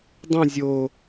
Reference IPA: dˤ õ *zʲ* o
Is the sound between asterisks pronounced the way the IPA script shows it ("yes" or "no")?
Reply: yes